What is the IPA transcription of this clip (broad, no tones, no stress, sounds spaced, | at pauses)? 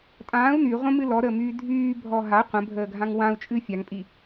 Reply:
tʼ ãː u̯ n y ʁʷ ə̃ m ɨ l ɔ ɾ əː m yː dʱ yː bʱ ɔ ɦ a qʷ ə̃ bʱ əː ɡʱ ã ŋ w ã u̯ t͡ʃʼ ɨ fʲ a ŋ pʼ i